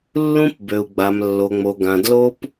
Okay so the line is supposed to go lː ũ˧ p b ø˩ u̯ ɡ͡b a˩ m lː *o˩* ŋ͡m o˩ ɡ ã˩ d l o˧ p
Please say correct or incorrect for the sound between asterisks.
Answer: correct